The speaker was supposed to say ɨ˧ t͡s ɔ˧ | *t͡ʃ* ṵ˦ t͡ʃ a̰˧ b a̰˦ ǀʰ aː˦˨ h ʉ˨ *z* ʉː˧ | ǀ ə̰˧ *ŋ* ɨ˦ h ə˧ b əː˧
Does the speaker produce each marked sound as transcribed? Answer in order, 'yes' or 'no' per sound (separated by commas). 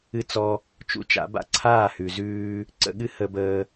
yes, yes, no